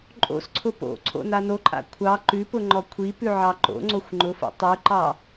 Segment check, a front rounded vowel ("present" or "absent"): absent